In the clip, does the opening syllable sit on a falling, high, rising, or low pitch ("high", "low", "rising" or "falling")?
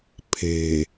low